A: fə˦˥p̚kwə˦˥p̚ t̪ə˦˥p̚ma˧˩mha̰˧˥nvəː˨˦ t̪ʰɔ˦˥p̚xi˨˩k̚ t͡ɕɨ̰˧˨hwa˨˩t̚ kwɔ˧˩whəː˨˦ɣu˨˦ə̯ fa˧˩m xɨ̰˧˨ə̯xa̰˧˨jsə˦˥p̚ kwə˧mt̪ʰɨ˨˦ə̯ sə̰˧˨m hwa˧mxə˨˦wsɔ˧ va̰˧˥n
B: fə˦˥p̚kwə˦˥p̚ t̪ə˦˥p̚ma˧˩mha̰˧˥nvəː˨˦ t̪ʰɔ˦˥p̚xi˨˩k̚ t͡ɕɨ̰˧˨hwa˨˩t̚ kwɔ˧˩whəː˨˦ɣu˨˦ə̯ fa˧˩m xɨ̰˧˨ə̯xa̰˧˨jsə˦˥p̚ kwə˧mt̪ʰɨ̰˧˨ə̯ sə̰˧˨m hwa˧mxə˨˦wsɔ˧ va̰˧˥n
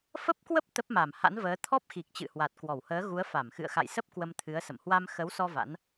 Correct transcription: A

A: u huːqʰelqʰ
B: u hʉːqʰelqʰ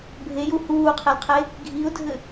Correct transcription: A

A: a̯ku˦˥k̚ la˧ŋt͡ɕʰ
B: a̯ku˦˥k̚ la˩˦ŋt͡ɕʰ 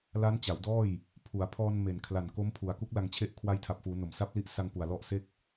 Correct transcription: A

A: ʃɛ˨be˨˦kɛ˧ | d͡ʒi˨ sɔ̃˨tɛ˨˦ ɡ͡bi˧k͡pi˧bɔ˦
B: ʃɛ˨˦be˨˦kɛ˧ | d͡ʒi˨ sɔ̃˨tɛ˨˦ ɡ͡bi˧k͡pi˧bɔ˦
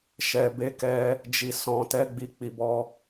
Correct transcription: A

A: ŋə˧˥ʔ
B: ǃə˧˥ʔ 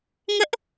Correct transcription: A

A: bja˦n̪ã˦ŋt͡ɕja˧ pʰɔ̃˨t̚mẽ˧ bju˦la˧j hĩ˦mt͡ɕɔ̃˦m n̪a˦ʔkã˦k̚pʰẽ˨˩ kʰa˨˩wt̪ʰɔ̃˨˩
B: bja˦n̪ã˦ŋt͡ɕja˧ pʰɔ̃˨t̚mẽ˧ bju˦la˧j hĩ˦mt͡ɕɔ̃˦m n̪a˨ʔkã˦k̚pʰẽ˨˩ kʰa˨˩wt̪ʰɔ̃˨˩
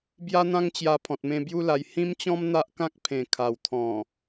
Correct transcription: A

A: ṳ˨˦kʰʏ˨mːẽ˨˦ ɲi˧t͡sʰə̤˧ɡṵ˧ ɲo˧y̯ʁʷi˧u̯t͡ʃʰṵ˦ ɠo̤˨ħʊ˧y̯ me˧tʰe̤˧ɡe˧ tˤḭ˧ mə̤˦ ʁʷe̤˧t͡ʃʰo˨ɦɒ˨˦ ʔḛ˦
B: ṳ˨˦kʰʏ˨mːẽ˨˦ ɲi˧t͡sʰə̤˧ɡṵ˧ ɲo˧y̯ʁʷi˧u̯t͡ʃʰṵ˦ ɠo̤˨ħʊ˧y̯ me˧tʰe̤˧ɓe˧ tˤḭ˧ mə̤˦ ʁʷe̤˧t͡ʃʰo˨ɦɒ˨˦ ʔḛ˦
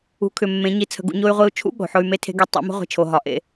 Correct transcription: A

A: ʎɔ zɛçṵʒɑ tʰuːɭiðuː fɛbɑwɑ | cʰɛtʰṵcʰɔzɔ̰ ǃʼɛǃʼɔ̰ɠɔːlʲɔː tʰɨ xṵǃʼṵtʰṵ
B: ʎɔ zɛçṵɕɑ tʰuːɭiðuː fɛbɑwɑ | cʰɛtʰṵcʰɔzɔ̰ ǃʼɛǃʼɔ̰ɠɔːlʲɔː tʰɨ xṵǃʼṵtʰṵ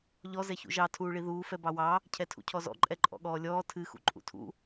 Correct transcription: A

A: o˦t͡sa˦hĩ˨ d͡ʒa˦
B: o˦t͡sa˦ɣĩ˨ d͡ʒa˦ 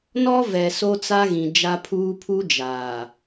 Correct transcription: B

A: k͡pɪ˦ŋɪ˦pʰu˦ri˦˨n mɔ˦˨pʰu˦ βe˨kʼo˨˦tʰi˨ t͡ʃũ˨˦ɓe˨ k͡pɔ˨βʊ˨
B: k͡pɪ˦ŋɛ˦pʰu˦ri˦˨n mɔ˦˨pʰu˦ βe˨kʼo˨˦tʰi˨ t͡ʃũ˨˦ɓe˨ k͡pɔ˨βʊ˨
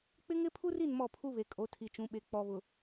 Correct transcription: A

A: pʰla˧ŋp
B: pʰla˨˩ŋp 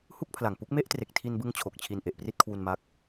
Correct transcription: B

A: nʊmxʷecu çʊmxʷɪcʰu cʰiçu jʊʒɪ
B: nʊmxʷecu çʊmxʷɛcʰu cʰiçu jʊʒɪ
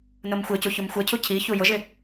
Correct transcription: B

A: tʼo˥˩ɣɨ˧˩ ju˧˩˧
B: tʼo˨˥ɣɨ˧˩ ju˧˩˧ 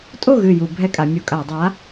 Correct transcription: A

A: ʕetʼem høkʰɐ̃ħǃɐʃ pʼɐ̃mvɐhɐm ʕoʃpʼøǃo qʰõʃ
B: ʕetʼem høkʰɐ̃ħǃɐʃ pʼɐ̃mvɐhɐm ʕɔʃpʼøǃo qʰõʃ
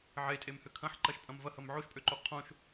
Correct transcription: A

